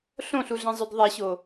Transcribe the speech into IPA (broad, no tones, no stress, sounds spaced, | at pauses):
ɬ õ ɬ u ɮ ɛ̃ zˤ ø d ðˤ ɛ ɕ o